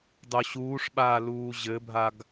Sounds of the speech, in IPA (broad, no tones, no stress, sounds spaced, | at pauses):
dˤ o ɕ uː ʂ ɓ aː l uː ʑ ɘ bʱ a ɡ